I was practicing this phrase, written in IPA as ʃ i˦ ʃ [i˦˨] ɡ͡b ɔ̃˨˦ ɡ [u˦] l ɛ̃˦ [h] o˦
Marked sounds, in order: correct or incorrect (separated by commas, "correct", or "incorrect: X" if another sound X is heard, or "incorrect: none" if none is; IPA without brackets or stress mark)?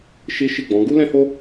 correct, correct, correct